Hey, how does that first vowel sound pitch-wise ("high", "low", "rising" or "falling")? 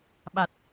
low